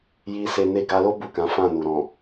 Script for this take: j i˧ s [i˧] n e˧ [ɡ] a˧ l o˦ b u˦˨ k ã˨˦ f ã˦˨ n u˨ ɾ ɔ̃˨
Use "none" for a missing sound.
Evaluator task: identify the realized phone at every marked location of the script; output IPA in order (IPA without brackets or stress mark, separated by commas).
e˧, ɡ